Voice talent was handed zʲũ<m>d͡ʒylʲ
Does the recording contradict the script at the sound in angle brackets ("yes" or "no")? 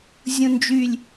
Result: yes